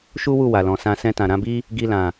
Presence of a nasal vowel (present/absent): present